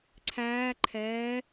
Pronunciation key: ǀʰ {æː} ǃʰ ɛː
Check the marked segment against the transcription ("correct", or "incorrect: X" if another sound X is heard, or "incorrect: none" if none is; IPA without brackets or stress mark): correct